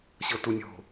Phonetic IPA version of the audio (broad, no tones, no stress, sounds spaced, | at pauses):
ɕ ɤ t u nʲ o̤